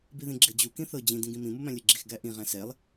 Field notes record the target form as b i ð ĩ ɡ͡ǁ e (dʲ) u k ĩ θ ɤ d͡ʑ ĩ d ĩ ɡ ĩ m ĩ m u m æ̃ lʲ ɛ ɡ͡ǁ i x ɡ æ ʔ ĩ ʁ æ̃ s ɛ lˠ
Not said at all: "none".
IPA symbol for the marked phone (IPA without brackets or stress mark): d͡ʑ